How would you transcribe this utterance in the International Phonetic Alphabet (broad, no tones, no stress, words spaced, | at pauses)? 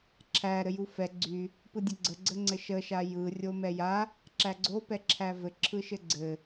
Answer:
ǁʰæ ɾɘjufɛ ɡ͡ǀy | pɯdʲɘɡ͡ǀə ɡ͡ǀəŋ͡ǀɘʃə ʃajɯ rʲomɛja | ǁæɡ͡ǀo pɛǁʰævɘ ǁʰɯʃɘɡ͡ǀɘ